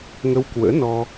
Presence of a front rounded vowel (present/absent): absent